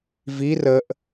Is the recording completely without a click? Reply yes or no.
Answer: yes